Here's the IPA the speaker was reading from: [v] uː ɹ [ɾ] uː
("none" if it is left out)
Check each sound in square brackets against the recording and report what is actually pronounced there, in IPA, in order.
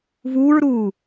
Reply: v, ɾ

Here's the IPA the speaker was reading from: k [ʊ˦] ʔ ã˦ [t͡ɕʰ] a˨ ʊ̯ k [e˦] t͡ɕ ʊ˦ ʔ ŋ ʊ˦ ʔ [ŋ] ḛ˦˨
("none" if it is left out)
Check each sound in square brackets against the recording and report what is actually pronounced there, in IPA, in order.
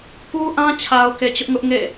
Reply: u˦, t͡ɕʰ, e˨, ŋ

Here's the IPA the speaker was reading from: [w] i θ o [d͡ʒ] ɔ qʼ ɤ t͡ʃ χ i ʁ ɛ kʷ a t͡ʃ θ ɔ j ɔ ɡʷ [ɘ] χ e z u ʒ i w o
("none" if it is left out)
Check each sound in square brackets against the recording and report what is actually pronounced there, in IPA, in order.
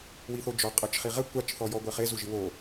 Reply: w, d͡ʒ, ɛ

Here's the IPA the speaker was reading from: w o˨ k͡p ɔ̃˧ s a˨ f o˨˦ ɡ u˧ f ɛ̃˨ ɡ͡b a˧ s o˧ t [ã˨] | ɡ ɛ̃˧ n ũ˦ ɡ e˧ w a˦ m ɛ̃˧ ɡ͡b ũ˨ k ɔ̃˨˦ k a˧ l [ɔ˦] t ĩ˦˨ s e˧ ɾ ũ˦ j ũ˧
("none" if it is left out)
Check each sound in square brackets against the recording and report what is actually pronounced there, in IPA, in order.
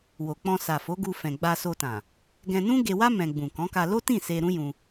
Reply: ã˨, o˦

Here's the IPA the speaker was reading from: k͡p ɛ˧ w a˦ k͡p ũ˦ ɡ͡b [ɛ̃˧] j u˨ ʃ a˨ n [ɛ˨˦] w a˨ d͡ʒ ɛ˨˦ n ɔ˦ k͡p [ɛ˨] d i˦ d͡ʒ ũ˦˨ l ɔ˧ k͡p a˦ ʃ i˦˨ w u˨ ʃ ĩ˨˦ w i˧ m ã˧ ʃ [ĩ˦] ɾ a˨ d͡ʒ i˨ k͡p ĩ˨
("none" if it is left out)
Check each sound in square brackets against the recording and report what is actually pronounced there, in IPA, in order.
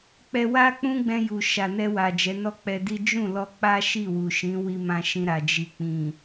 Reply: ɛ̃˧, ɛ˧, ɛ˧, ĩ˧

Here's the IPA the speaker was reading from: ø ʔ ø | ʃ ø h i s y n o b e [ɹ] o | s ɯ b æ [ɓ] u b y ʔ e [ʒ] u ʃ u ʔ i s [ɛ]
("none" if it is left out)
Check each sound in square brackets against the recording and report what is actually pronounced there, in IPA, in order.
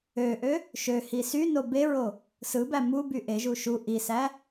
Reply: ɹ, m, ʒ, æ

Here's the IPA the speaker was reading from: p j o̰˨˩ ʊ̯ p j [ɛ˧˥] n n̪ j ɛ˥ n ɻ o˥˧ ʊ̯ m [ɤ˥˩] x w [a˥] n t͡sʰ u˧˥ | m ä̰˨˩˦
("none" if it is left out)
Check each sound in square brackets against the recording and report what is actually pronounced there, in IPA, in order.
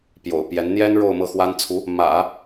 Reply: ɛ˧˥, ɤ˥˩, a˥

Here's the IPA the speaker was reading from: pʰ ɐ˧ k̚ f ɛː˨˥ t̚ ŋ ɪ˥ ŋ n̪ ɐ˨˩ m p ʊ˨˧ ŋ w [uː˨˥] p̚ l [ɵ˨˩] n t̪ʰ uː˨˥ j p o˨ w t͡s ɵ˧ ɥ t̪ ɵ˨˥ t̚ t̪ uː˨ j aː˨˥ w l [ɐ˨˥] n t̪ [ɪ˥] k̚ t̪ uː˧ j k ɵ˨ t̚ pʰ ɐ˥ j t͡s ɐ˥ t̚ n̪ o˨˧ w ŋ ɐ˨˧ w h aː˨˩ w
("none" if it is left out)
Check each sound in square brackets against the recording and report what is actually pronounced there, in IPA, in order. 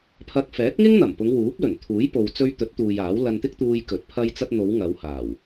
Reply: uː˨˥, ɵ˨˩, ɐ˧, ɪ˥

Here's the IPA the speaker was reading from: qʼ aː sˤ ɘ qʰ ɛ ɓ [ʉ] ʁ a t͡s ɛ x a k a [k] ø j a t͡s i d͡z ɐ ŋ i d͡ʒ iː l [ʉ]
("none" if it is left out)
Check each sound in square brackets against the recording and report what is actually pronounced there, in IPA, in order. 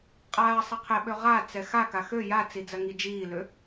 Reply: ø, x, ø

